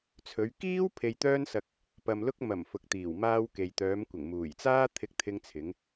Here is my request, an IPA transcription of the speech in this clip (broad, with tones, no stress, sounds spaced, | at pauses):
t͡sʰ ɵ˨˧ ɥ k iː˥ w pʰ e˧ j t̪ œː˥ n s ɐ˧ k̚ | p ɐ˨ m l ʊ˧ k̚ m ɐ˨˩ m f ʊ˨ k̚ t̪ iː˨˩ w m aː˧ w k e˨ j t̪ œː˨˧ m kʷ ɪ˨˩ ŋ m uː˨˩ j t͡s aː˥ t̪ʰ ɪ˧ k̚ t̪ʰ ɪ˧ ŋ t͡sʰ ɪ˨˧ ŋ